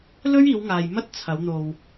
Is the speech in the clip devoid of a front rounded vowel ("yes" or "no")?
yes